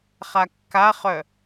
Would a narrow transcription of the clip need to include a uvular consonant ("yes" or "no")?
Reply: yes